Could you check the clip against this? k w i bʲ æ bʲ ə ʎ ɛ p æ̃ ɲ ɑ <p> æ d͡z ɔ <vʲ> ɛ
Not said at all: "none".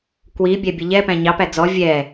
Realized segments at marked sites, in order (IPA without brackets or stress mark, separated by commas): p, vʲ